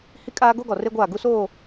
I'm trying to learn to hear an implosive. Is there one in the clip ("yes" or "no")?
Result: no